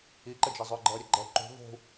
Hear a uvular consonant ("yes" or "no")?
no